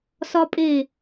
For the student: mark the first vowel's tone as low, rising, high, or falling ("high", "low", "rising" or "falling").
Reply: high